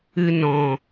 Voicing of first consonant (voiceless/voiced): voiced